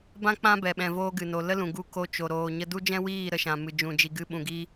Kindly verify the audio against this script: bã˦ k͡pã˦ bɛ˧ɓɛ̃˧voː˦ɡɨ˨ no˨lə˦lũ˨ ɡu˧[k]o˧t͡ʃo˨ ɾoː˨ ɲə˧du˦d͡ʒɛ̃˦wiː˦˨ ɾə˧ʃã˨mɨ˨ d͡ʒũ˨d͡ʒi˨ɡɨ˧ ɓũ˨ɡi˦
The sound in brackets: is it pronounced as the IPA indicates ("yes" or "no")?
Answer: yes